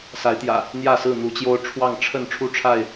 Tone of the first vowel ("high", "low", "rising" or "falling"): rising